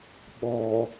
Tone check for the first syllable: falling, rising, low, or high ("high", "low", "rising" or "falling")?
low